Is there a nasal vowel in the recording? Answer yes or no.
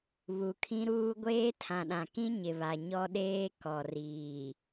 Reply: yes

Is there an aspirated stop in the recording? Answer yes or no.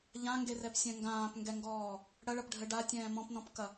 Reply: no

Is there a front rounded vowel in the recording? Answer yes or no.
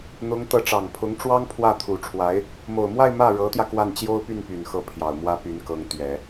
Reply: yes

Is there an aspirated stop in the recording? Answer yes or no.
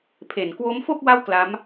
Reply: yes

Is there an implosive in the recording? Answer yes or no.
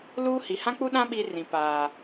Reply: yes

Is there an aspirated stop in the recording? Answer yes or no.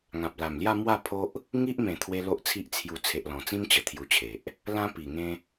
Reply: yes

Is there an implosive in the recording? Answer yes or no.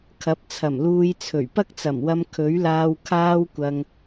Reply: no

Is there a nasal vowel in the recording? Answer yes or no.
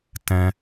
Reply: yes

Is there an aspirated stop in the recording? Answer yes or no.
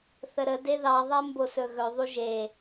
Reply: no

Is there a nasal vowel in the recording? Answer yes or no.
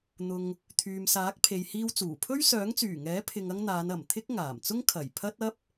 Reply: no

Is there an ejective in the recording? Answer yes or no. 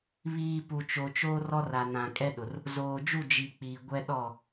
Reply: yes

